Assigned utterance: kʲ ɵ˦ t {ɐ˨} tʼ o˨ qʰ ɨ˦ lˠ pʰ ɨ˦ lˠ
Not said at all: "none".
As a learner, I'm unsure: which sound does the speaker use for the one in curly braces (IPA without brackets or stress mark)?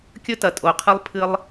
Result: ɐ˨